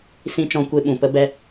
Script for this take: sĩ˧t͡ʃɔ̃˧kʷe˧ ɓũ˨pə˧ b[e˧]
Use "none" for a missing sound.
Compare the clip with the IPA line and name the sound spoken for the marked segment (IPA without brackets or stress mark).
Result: ɛ˧